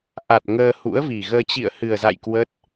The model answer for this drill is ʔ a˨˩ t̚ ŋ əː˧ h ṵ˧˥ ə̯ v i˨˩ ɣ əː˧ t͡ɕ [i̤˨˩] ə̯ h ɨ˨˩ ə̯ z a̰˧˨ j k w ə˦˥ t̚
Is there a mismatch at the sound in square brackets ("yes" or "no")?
yes